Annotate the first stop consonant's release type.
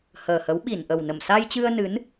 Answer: implosive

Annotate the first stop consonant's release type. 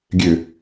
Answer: plain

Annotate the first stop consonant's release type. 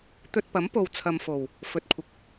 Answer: plain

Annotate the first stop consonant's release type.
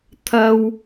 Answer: aspirated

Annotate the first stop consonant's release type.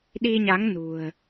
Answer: implosive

